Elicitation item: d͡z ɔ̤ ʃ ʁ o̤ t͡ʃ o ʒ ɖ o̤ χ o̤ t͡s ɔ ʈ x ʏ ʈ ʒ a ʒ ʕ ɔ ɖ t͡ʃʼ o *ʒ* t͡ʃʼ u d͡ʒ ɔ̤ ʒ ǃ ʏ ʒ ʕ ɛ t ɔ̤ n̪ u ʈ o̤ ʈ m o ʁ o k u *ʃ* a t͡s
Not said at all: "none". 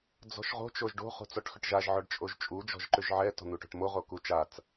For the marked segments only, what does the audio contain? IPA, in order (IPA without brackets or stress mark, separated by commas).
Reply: ʒ, t͡ʃ